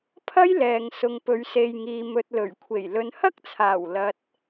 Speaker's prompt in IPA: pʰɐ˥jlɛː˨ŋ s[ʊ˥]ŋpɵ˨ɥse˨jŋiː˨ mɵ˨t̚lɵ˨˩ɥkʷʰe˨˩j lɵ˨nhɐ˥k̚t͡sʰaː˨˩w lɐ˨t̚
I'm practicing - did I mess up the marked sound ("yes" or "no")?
yes